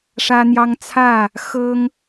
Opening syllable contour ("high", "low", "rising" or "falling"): high